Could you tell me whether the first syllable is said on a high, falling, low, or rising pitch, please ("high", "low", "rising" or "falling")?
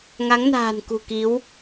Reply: rising